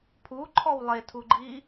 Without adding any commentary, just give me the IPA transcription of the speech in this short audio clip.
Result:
pʰuǃʰɔw lˠetʰuɡ͡ǃi

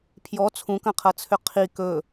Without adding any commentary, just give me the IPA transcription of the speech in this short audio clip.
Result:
pʰjɔ t͡sʰũkɐ̃qʰɐt͡sʰʏ qʰi kɵ

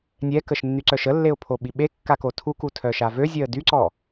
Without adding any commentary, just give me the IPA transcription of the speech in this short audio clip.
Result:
nʲɛkəʃ nːyǀœʃəlːeʊ̯ pʰoɓiɓekːa kotʰuku tʰœʃavøzʲœə̯ dyǀɔ

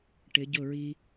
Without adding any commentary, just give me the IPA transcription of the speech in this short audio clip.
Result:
ʈɪ˨˦ɟʊ˦˨ɹi˦

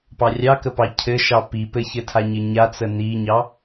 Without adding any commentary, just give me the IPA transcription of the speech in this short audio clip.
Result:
pɑrʲɑkəpɑ cʰɘʃɑ pi pɘçɘtʰa ɲɘɲat͡sə niɲɑ

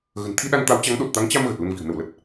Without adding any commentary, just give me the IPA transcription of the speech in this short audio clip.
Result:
ɣə̤˨˩nt̪ʰi˧ɗa˧n t̪a˨˦wt͡ɕa˨˦ŋɗo˨˩t̚t̪a˨˦ŋ t͡ɕa˧m ɣə˨˩t̚lə˧nvi̤˨˩ə̯ nə˧˩wlə˨˩t̚

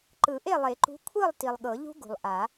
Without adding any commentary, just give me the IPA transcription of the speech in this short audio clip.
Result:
ǃɯ˨˩˦ʔe˥˨lˠe˨˩˦ǃṳ˨˥ kʷʰɯ˥˨lˠ ti˨lˠɠɤ˨˩˦ʎṳ˦˥ ɡṳ˨lˠʔa˨˩˦

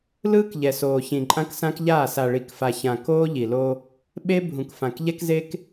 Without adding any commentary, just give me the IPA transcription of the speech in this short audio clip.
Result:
lɯː˦kʎɛ˨soː˨çĩ˨ ǃʼã˦ksã˦kʎaː˦˨ sa˨ɭi˨kfa˨çã˨ koː˦ʎi˨lo˦ | ɓe˦ bʱũ˨kfã˨kʎɛ˦kze˦k

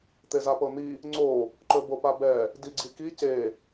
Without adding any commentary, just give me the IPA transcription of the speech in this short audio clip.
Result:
t̪ezapɤn̪i | ŋ͡ǀo | ǃɵbopabɛ | diɡ͡ǀiki ce

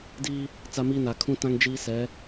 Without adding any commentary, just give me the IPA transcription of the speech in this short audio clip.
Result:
diː˦ | t͡sa˦miː˦na˨ kʰũ˦tã˦ŋ d͡ʒiː˦sɛ˨˦

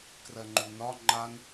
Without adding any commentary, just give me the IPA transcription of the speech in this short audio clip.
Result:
krɜŋ͡ǃunɒ ŋ͡ǃan

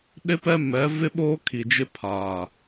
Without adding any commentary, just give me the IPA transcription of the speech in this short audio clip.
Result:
ɗɪ˦pɛ˦mɛ˨˦ vɪ˦ɓoː˦kʰi˨d͡ʒɪ˦ pʰa˨

